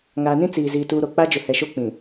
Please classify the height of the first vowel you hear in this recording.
low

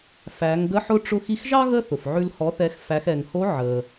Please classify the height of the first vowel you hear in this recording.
low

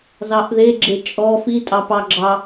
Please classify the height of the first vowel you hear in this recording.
low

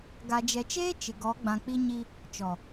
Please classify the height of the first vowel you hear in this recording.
low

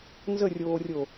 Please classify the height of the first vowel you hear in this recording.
mid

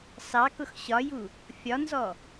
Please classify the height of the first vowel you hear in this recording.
low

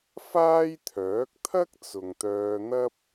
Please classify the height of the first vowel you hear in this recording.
low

